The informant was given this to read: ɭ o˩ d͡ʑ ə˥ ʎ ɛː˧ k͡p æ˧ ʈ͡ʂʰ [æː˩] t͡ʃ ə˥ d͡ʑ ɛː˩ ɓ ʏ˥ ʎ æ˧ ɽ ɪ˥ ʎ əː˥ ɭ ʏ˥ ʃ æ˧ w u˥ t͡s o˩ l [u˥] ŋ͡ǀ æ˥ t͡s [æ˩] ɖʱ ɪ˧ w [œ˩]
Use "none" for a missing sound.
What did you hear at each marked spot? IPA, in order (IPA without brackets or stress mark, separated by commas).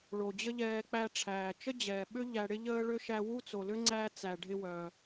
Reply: æː˩, ʏ˥, æ˩, œ˩